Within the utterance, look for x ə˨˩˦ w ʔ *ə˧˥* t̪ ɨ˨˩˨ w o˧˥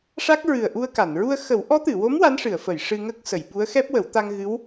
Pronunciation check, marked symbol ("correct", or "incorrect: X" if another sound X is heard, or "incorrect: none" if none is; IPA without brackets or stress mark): incorrect: ɔ˧˥